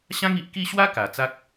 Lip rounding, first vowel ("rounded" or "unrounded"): unrounded